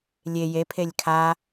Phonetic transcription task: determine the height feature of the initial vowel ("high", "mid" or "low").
mid